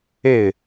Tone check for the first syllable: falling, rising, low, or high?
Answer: falling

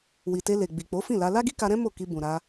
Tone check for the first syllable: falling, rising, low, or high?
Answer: low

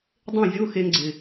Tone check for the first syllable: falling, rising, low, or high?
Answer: falling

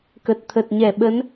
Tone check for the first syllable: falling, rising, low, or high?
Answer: low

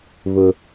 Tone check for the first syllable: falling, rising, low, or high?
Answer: low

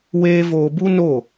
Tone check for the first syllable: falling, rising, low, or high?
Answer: high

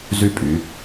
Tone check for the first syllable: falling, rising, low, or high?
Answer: high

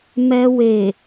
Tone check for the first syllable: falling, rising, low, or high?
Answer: high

